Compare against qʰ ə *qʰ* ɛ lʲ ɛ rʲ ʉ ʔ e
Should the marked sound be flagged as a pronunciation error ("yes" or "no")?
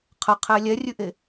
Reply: no